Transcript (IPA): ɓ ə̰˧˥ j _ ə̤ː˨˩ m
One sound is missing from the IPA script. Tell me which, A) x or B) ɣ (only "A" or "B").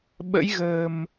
B